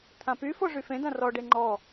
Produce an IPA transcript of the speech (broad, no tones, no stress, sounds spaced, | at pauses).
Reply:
t̪ʰ ã p y f o ʐ y f ẽ d ã r ɔ ɖ e ŋ͡ǃ ɔ